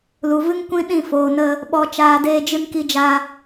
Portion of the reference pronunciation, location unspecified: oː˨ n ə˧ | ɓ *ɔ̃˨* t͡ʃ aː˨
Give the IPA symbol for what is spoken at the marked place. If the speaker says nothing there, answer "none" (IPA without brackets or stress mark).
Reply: ɔ˨